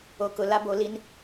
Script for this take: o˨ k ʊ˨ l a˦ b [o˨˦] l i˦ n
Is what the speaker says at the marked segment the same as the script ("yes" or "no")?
yes